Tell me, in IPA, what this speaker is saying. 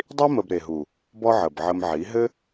dˤ i˦ m ə˧ b ɾ e˨ ɦ u˨ | b ɔ˦ ʕ ə˨ b ʕ ə˧ m ʕ i˨˦ ɦ ɘ˦

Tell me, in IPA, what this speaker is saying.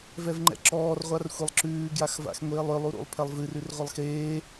v ɛ v ŋ͡ǃ ɛ̰ ǁ ɔː r ʁʷ a r xʷ e lˠ ǁ ʉː ɡ j a x v a̰ x ŋʷ eː lˠ ʏ lˠ u ɾ ṵ lˠ pʰ ɛ lˠ v ɨ r ʉ r ʁʷ ɘ lˠ x eː

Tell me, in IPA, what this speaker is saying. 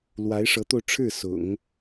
l w a˧˥ ɪ̯ ʂ ɤ˧˥ t̪ o˧ ʊ̯ ʈ͡ʂʰ ɻ̩˥˩ s ʊ̰˨˩˦ ŋ

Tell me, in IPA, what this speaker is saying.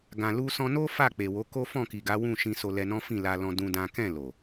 ɡ ã˨ l u˧ s ɔ̃˧ n o˦ f a˦˨ k͡p e˨ w o˨˦ k o˦ f ɔ̃˦˨ k i˨ ɡ a˨˦ w ũ˦˨ ʃ ĩ˧ s o˧ l ɛ˧ n ɔ̃˦ f ĩ˦˨ l a˧ l ɔ̃˧ d ũ˦ d ã˦ k ɛ̃˦˨ l o˨

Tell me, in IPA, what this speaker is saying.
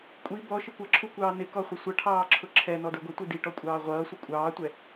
kʷʼ i b ɔ ʃ ɪ kʷ ʌ ǁʰ u kʷ ɑː n ɪ k ɔ χʷ ɪ sʷ ʌ ʈʰ ɑː ǁʰ ʊ ǁʰ ɛ n ɔ d ə˞ ɡʷ ə tʷ i d i ʈ ɔ kʷʼ ɑː ʁʷ ʌː sʷ ə kʷʼ ɑː tʷ ɛ

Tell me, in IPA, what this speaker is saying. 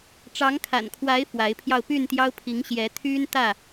ʈ͡ʂ ɑ˨˦ ŋ kʰ a̰˨˩ n kʰ w a˨˦ ɪ̯ f w a˨˦ ɪ̯ pʰ j ɑ˧ ʊ̯ p y˥˨ n t̪ j ɑ˦ ʊ̯ pʰ i˨˦ ŋ ɕ j ɛ˨˦ t̪ʰ y˦ n t̪ ä˥˨

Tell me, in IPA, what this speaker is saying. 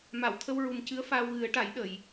m a˨˩˨ w t̪ʰ ə˧ w ɹ u˨˩ m c ɨ˧˥ ə̯ f aː˧ w ɣ ɨ˨˩˦ ə̯ ʈ a˨˩˦ j ɗ ə˨˩˨ j

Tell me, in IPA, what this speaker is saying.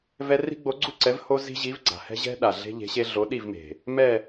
v ɛ˥ r i̤˥ ɡ͡b o˧˥ ɡ͡ǀ u˥˧ ǀ ɛ˧˥ v h o˥ z i̤˥ ʑ i˧˥ v ɡ͡ǀ a̤˨ h ɛ̤˥ ʑ ɛ̤˥ ɗ a˨ ɮ e̤˥ ʎ e̤˧˥ ɕ e˥ ɮ o˧˥ ɗ i˥˧ v m e̤˨ | m ɛ˥˧

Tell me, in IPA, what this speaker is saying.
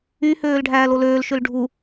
y h øː l ɖʱ æː l o l øː l ʃ ø l ɖʱ u

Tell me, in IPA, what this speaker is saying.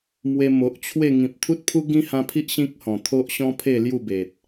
m w e˧ m o˨ ʔ t͡ɕʰ w e˥˧ ŋ ĩ˨ p̚ t̪ʰ u˦ t̚ pʰ u˦ ɡ ĩ˦ h ã˧ pʰ i˦ ʔ ɕ ĩ˦ k̚ h ɔ̃˨˩ t̪ʰ o˦ ʔ ɕ ɔ̃˦ pʰ e˥˧ l j u˥˧ b e˨ t̚

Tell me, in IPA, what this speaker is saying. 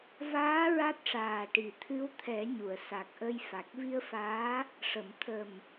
v aː˧˥ ɹ a˦˥ t̚ ʂ aː˨˩ ʈ i˨˩ t̪ʰ ɨ˧˥ w t̪ʰ ɛ˨˩˦ ɲ u˨˩˨ ə̯ s a˨˩ k̚ ʔ ə˧ j f a˨˩ k̚ v i˧ ə̯ f aː˧˥ | ʂ ə˨˩˨ m t̪ʰ ə˨˩ m

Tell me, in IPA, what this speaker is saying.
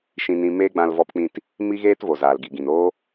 ʃ ĩ˧ n ĩ˧ m eː˦ ɡ͡b ã˧ l v ɔ˧ p k͡p ĩ˧ t | m i˦ ɣ eː˦ t v o˨ z aː˨ l ɡ i˨ ɡ ĩ˨ n oː˦

